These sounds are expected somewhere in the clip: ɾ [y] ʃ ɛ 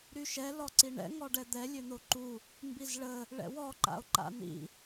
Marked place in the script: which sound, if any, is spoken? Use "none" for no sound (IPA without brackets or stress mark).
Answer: y